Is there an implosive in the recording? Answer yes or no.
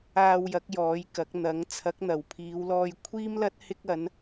no